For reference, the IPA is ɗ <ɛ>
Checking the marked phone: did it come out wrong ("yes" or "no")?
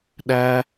yes